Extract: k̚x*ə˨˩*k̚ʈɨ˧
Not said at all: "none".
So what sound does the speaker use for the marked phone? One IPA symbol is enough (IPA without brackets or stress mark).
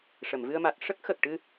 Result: ə˨˩